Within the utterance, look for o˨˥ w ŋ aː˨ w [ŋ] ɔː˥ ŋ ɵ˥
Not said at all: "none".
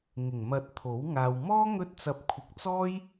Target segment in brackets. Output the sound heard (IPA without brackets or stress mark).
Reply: m